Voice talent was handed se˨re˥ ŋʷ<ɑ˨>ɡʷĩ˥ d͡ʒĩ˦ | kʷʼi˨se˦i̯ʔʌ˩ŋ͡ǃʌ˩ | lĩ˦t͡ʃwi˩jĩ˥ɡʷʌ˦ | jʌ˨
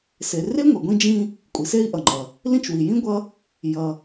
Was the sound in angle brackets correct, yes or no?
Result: no